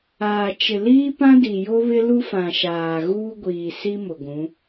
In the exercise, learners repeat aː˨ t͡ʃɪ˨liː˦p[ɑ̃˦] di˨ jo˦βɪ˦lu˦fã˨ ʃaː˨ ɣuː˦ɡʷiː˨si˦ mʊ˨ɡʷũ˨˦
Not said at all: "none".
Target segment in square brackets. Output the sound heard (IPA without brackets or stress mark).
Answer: ã˦